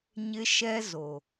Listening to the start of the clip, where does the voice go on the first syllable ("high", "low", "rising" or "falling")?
high